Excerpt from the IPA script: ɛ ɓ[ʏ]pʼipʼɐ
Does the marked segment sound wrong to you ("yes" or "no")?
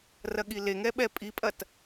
yes